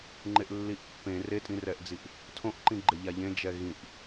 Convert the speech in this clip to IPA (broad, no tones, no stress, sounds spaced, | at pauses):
ŋ͡ǃ e ʔ lː i ʔ pː ẽ r e tʼ ĩ r ɛ ʔ d͡z i ʔ | tʰ õ ʔ ǃ ĩ ɡ͡ǃ e ʎ a ʎ ẽ d͡ʒ ɛ ɣ ĩ ʔ